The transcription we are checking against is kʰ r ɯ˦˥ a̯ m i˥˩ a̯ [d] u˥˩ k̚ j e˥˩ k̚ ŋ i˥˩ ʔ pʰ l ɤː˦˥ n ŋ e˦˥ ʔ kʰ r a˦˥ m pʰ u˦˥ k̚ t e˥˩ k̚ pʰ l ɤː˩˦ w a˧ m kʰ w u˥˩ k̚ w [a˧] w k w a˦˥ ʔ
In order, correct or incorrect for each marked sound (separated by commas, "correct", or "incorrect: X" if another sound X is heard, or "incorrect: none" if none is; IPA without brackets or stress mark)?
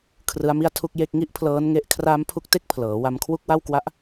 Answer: incorrect: tʰ, incorrect: a˥˩